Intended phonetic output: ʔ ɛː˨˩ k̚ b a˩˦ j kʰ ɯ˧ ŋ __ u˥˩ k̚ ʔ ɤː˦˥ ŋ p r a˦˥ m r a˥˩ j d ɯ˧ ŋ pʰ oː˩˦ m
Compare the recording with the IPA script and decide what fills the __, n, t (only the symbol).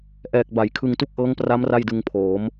t